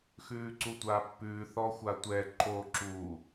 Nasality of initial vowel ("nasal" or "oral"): oral